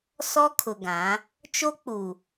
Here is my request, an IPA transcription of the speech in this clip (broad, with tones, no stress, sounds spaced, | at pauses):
s ɔ˦ kʰ ʊ˨ ɡ ã˨˦ | t͡ʃ o˦ k͡p u˨